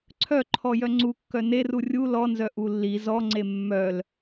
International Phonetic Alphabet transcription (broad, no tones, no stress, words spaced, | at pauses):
ǀʰœǃʰɔ jœŋ͡ǀukːœ neru rʲu lɔnzœ ʔulːi zɔŋ͡ǀe mːœl